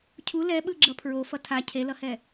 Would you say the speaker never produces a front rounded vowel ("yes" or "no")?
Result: yes